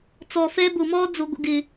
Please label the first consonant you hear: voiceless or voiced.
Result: voiceless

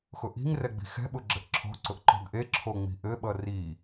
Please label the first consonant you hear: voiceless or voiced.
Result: voiceless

